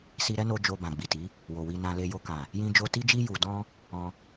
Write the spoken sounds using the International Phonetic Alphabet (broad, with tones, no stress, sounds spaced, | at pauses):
s i˧ ɾ ɛ˦ n o˧ d͡ʒ o˧ b ã˨ ɡ͡b i˨ t i˨˦ | w o˨ w i˧ n ã˧ l e˧ j o˧ k ã˨ | j ĩ˦ d͡ʒ o˦ t i˦ d͡ʒ i˦ j u˧ d ɔ̃˦ | ɔ̃˧